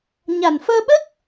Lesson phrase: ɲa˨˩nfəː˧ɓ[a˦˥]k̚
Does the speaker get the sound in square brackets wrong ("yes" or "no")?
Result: yes